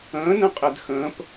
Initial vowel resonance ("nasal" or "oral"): nasal